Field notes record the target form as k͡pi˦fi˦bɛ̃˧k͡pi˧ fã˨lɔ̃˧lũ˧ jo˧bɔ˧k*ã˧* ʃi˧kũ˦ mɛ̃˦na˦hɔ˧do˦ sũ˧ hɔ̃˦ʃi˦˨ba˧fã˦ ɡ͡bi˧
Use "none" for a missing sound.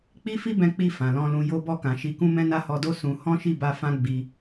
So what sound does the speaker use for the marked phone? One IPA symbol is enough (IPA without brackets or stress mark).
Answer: ã˨